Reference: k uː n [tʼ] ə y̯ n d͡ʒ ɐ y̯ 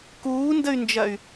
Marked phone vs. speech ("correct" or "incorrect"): incorrect